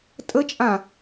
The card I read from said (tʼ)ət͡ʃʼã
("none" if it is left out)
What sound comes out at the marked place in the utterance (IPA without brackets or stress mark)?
tʼ